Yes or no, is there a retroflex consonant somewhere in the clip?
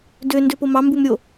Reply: no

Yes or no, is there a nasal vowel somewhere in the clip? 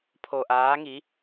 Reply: no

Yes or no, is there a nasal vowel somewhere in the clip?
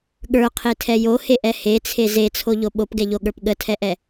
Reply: no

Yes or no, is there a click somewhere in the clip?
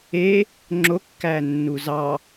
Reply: yes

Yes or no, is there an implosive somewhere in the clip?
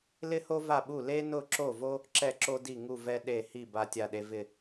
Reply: yes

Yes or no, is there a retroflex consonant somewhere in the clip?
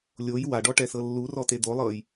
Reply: yes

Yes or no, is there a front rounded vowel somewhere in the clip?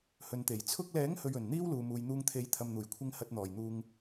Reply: no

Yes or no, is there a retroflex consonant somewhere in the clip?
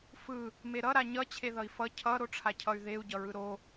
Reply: yes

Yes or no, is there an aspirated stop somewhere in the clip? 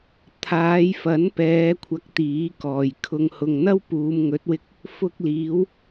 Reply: yes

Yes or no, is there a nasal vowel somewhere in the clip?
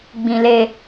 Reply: yes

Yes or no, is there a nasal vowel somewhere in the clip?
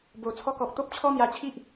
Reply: no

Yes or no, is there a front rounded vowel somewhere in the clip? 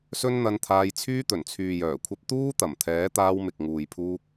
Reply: yes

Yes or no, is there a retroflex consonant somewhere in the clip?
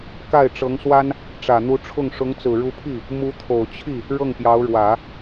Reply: yes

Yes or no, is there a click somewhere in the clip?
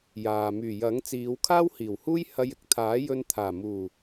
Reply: no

